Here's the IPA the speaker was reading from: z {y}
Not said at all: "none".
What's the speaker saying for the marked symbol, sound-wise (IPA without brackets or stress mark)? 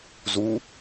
u